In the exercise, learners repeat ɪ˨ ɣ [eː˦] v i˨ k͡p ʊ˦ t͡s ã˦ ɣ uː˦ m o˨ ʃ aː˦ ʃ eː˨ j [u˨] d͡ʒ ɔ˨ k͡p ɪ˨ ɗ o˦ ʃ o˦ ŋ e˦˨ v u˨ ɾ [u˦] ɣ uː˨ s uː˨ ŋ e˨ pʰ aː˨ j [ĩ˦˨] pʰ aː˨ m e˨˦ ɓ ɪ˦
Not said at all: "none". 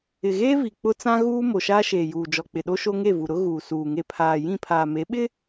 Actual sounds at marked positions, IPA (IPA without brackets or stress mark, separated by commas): eː˦, uː˨, ʊ˦, ĩ˦˨